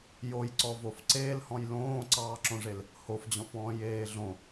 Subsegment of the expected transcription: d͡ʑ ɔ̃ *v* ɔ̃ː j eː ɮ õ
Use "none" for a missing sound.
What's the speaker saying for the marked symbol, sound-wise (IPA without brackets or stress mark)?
f